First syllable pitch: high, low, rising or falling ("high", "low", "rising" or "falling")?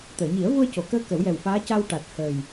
low